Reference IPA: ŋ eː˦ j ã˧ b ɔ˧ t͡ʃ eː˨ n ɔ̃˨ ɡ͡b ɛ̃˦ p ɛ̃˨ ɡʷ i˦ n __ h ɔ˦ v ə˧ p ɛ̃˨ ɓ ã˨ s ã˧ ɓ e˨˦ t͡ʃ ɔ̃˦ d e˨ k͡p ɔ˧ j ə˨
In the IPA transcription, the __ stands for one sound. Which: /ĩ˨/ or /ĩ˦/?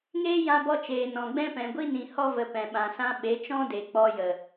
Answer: ĩ˨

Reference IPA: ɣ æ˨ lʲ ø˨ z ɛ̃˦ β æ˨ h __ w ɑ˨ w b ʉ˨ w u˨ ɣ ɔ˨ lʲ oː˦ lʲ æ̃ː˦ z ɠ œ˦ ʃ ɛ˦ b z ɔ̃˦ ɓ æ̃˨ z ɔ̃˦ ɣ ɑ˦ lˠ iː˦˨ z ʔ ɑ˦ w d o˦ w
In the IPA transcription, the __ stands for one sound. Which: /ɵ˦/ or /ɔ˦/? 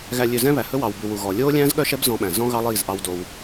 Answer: ɵ˦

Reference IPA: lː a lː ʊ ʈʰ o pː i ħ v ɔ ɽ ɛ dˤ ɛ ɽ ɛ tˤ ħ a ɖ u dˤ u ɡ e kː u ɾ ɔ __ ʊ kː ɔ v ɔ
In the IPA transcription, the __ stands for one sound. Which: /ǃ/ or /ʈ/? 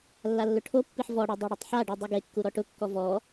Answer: ʈ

